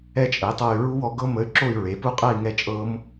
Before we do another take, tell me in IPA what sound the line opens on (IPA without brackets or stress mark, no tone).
ɛ